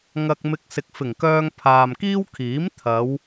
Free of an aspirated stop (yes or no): no